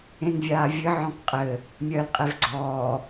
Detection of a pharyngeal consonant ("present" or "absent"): present